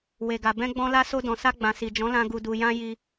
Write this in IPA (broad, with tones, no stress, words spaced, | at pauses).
we˨ɡa˨ bɛ̃˧ɡ͡bɔ̃˧la˧ so˧dɔ̃˨sa˧ ɡ͡bã˨si˨d͡ʒɔ̃˨˦lã˧ ɡu˨du˨jã˧ ji˧